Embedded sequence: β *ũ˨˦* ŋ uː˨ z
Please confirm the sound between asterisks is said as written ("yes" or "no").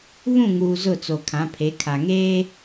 no